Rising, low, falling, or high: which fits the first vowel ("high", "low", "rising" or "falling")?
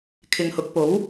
low